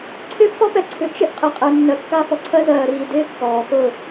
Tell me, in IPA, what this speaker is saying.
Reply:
ǀʰ ɪː˦ p f ɔ˦ p ɛ˨ ǀʰ ʏ˨ t͡ʃ ɪ˦ ʔ qʼ ɪ˨ qʼ ɛ˨ nː ɜ˨ kː a˦ f ɔ˨ ǀʰ ɜ˦ z ɜː˨ ɾ iː˨ d ɪː˦ kː ɔː˨ x ʊ˦˨

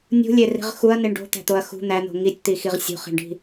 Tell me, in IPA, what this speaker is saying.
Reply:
nʲ ṳ lʲ e r i̤ ʁ x u ɐ̯ n i ɳ ɖ o̤ t̪ æ̤ t̪ o ɐ̯ x ṳ n̪ æ n̪ o̤ ŋ i tʲ t̪ i x i ʁ sʲ ṳ χ i̤ ɳ ɖ i̤

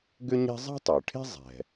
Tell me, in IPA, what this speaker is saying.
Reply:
ɡ ʏ˥ ɲ ɛ̤˥ zˤ ɛ̤˥ tˤ ʏː˩ ʈʰ e̤˥ zˤ ɛ̤˩

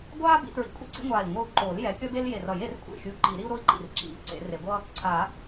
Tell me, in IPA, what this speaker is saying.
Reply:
ɡʷ aː˥ b ḭ˨˩˦ t ɹ ḭ˨˩˦ kʷʼ ḭ˥ ǀ ḭ˥ ŋʷ aː˧˩ i̯ ŋʷ ɯ˧˩ u̯ ǃ o˨˩˦ l j ɛ˨˦ kʲ ʌ˥ b e˥ l j e˧˩ r ʌ˨˩˦ j e˨˩˦ r kʷʼ ḛ˧˩ xʲ u˨˦ ǃ i˨˩˦ ɾ i˥ u̯ ɾ o˥ i̯ ǃ ḭ˧˩ r ǁ ḭ˨˩˦ ǀ ḛ˨˩˦ r e˨˩˦ ɡʷ ʌ˥ | ǀʰ a˨˩˦

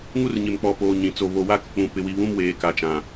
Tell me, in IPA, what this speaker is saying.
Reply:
ŋ u˦ r ɲ ɪ˨ m k͡p ɔ˨ p oː˨ ɲ ĩ˨ t͡s o˨ β o˨ w a˦ k ʊ˨ k͡p ũ˨ p ɪ˨ w i˨ β ũ˦ m w eː˨ k a˨ t͡ʃ ã˨

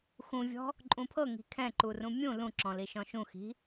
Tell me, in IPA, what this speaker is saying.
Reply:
x ũ vʲ ɔ̤ | ǃʼ ũ pʰ ɤ ŋ i̤ kʰ ɛ̃ ǃ u r ũ mʲ ũ l ũ ǁ ɔ̃ l i ʃ ɔ̃ ʃ ũ x i̤

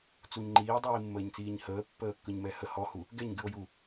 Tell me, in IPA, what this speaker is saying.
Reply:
t͡s u ɲ ŋ͡ǃ iː dˤ iː mː əː ɲ t͡s iː ɲ h əː pː əː kː ɯ ɲ m ɛ h ə h ɔ h u | ɡ ɛ ɲ ɡ ɨ o̯ j u

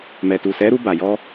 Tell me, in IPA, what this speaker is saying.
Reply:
m ɛ˨ t u˨ s ɛ˨˦ ɾ u˧ b a˨ j ɔ˧

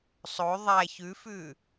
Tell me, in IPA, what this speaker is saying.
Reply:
sˤ o ðˤ æ ç ʉ f ʉ

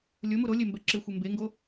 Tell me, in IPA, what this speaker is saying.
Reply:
lʲ ʊ m u ɾ o lʲ e m b ɛ ǁ ɪ xʷ e m b e ŋ ɡ o

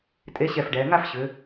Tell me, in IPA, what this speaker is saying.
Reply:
tʼ e˨˥ ɕ ɛ˧˩ f ɖ ɛː˩˧ ŋ a˥˧ f ɕ ʏ˩˧

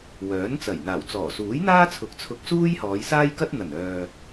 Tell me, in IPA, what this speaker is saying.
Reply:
w œː˨˥ n t͡s ɐ˨˩ j n̪ aː˨˩ w t͡s ɔː˨˩ s uː˨˥ j n̪ aː˥ t͡sʰ ʊ˨˥ k̚ t͡sʰ ʊ˧ k̚ s uː˥ j h ɔː˨˧ j s aː˥ j k ɐ˥ t̚ n̪ ɐ˨˩ n œː˨

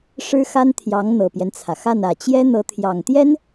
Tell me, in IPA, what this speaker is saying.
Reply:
ʂ ɻ̩˥ x a˥ n t̪ʰ j ɑ˧˥ ŋ n̪ ɤ˨˩ p j ɛ˦ n t͡sʰ ä˩ x a˥˩ n ä˨˩ t͡ɕ j ɛ˥ n̪ ɤ˧˥ t̪ʰ j ɑ˨˩ ŋ t̪ j ɛ˥ n

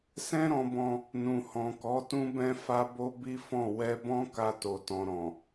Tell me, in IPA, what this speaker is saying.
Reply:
s ɛ̃˦ ɾ ɔ̃˧ b ɔ̃˧ | n ũ˨ h ɔ̃˨ k ɔ˨˦ t ũ˦ b ɛ̃˦ f a˦ b o˦ b i˦ f ɔ̃˦˨ w ɛ˧ b ɔ̃˦ k a˧ t o˨ t ɔ̃˨ ɾ ɔ̃˨

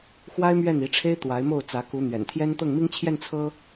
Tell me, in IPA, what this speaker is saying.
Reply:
x w a˥ ɪ̯ m ɥ ɛ˥˩ n i˧˥ ʈ͡ʂʰ e˥ ɪ̯ t̪ w a˧˥ ɪ̯ m o˥˩ ʊ̯ t͡s ä˧˥ k u˧˥ n̪ ɥ ɛ̰˨˩ n t̪ʰ j ɛ˥ n t̪ ɤ˥˩ ŋ m i˥ ŋ t͡ɕʰ j ɛ˥˩ n t͡sʰ ɤ˥

